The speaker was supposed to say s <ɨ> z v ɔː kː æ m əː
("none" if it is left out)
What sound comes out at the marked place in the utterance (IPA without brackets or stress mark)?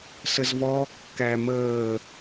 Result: ə